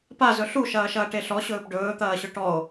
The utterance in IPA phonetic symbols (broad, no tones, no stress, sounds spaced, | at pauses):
p a z ɵ ɬ u ʃ ɐː ʃ ɐː ʈ e ɬ ɔ ɕ ɵː p ɖ ɵː t̪ ɐː ɕ ɵ ʈ ɔ o̯